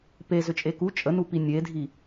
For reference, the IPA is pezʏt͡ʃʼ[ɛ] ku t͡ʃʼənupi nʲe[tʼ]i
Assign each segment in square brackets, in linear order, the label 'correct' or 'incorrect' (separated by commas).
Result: incorrect, incorrect